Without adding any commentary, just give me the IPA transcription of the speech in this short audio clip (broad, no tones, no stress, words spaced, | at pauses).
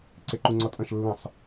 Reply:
ǀeǃuŋ͡ǀɔtʼɐ̃ʃ lːə̃sˤ